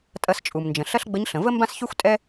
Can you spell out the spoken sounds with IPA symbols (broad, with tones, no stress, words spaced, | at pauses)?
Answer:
tʼɐ˧st͡ʃʼu˩mnd͡ʒə̃˩ ɬɐ˥ɬɡ͡bə˧˥ɲɬə̃˩ və˥ mbã˥sçy˥xʷ tʼɛ˥